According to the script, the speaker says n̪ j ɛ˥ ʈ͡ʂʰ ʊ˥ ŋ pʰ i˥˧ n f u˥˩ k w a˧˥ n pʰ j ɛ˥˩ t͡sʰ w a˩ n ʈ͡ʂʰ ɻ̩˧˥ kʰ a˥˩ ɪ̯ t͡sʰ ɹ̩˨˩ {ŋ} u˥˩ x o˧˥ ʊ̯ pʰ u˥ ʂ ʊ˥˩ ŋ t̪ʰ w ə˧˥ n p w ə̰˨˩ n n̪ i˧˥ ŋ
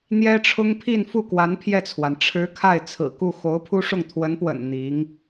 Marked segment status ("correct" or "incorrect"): incorrect